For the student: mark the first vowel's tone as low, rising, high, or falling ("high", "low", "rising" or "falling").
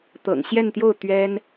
low